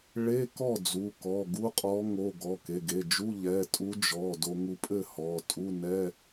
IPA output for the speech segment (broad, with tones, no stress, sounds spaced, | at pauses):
ɭ e˧˥˧ k ɔ˥˩ d͡z u˩˧˩ k ɔ˩˧˩ ɡ u˧˥˧ qʼ ɔ˧˥ ŋ o˩˧˩ ɡ ɔ˩˧˩ k e˩˧˩ ɡ e˩˧˩ d͡ʒ u˧˥˧ ʎ ɛ˩˧˩ tʼ u˧˥ d͡ʒ ɔ˩˧˩ d o˧ ŋ u˧ pʼ ɘ˥˩ h ɔ˩˧˩ tʼ u˧˥˧ n ɛ˧˥˧